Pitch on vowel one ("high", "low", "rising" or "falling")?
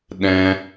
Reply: high